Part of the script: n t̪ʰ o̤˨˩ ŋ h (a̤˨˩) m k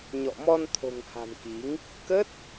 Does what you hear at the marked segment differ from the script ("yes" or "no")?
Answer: no